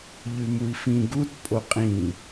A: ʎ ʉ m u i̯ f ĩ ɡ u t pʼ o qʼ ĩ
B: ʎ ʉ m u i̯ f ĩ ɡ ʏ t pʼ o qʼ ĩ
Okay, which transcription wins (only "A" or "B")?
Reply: A